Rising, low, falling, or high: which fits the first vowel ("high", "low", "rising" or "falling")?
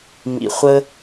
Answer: low